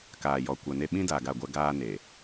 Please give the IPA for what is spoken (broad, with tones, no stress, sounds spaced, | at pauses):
k aː˨ j ɔ˨ kʷ a˨ n e˦ ɓ ĩ˦ d aː˨ ɡ a˦˨ ɡʷ ɛ˦ ɡ aː˦ n e˨